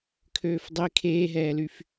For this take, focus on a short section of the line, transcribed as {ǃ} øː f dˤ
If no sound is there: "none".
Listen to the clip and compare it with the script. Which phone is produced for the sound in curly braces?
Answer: kʰ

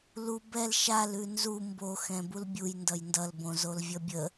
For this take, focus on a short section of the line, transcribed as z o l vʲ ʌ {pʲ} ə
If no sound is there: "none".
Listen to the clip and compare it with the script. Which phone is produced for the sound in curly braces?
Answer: bʲ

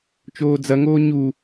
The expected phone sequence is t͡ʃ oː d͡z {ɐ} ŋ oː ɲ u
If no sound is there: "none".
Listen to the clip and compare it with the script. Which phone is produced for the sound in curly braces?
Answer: ɐ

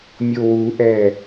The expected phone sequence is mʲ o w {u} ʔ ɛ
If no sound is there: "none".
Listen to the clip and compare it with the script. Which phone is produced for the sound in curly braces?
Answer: u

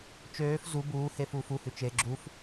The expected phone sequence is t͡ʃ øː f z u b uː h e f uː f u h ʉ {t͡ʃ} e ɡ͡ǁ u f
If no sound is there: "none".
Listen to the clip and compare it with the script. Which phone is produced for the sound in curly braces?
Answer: t͡ʃ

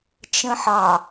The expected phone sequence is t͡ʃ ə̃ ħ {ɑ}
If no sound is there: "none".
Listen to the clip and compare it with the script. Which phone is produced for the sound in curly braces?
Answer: ɑ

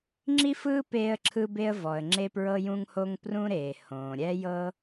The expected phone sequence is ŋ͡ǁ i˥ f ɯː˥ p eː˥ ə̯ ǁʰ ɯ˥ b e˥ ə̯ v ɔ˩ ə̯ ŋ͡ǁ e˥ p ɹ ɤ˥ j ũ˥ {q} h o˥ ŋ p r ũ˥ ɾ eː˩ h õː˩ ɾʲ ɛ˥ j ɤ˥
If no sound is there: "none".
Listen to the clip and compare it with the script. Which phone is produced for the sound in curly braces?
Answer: ŋ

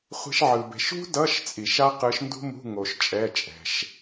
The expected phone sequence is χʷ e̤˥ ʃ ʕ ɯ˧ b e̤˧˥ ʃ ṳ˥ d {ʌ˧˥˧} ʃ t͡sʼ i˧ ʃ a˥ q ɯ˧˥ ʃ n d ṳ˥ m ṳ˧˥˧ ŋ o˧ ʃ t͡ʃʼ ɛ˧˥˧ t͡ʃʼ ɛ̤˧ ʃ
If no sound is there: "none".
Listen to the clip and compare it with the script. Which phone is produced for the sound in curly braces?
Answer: ʌ˧˥˧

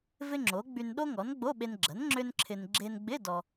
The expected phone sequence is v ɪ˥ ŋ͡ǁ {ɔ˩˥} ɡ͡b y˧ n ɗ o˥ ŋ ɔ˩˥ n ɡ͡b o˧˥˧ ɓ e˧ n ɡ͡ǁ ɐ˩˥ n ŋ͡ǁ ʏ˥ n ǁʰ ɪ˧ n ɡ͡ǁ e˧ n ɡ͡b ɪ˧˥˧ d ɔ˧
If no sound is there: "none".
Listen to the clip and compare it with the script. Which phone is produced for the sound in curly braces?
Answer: o˩˥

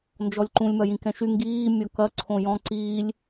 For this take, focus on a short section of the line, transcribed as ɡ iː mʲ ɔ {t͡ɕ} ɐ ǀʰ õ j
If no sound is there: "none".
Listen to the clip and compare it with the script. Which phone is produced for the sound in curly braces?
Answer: k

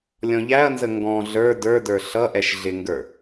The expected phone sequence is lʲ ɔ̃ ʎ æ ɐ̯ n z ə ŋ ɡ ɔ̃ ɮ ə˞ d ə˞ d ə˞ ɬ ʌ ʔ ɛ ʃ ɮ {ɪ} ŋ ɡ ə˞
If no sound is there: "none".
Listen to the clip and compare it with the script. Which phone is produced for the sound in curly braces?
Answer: ɪ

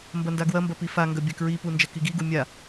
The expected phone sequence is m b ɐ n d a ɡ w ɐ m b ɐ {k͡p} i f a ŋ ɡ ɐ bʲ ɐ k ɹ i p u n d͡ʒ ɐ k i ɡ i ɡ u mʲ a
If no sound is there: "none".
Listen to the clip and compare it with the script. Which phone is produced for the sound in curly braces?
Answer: p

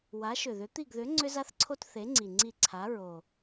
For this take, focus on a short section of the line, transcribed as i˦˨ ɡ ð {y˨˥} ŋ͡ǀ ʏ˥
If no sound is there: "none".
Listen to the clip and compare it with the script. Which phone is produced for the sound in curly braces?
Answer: ʏ˨˥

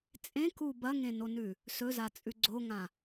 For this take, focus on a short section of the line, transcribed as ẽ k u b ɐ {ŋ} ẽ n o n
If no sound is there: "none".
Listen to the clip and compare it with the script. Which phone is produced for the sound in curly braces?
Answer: ŋ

